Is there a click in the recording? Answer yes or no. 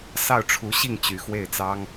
no